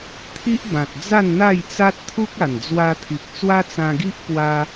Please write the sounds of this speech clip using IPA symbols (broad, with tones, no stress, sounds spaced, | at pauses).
t̪ʰ i˦ ʔ b ã˨ t̚ d͡z a˥˧ n n̪ a˥˧ j t͡s a˦ t̚ t̪ʰ u˦ k̚ a˨˩ n d͡z w a˧ t̪ʰ i˨ k̚ t͡s w a˦ t͡s ã˧ ɡ i˦ ʔ p w a˦